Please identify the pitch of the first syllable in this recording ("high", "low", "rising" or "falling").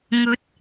rising